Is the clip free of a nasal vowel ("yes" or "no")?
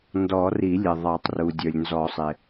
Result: yes